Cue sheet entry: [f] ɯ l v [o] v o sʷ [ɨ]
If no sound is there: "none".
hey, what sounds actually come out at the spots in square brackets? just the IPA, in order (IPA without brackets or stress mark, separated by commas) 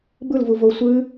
b, u, ɨ